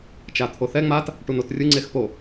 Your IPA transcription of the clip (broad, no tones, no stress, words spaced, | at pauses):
t͡ʃat̪ʰoθɛ ŋ͡mat | ʈunotrʲɯ ŋ͡ǀexpo